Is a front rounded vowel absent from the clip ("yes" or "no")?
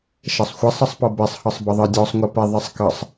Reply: yes